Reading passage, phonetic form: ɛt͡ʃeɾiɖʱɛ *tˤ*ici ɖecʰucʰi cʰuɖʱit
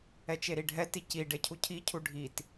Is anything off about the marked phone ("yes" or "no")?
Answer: yes